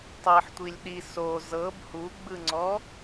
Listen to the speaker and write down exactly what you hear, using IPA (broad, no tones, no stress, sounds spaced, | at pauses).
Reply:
tˤ ɤ ħ tʷ i lʲ ɗ i s o z ɤ b h u ɡ͡b ɯ ŋ͡ǀ ɔ